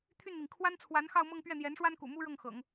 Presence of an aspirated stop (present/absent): present